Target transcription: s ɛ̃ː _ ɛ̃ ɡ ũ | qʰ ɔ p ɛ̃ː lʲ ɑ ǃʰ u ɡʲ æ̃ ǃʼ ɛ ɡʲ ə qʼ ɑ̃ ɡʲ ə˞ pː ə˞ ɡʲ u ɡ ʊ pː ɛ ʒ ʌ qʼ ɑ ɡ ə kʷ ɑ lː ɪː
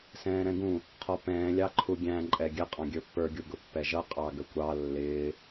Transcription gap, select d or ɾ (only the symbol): ɾ